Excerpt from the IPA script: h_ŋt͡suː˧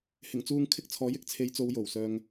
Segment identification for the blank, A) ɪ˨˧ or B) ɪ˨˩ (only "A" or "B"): B